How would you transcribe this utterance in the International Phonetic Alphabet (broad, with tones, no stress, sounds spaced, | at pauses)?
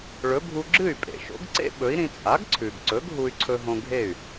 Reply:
ɭ ɵ˩˥ bʱ u˧ ɡ͡ǁ ɨ˥˩ y̯ pʼ ḛ˩ ʃ o̰˩˥ ɡ ǀ ḛ˥ ɓ ɵ˩˥ i̯ ɾ ĩ˧ t͡sʼ a˩˥ ɡ ǀʰ ʉ˩ ɡ ǀ ɵ˩˥ ɡ ɦ u˧ y̯ ǀʰ ɵ˧ ɦ õ˧ ɡʱ e˥˩ y̯